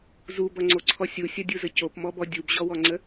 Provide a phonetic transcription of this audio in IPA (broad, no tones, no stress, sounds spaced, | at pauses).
z u b ʌ ŋ͡ǀ o ǀʰ ɔ sʲ u sʲ ʌ dʲ u z ə c o p m ɔ b ɔ dʲ u b ʑ ɔ w ɔ ŋ͡ǀ ə